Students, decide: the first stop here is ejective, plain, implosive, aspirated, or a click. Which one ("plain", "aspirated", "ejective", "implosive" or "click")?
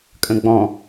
ejective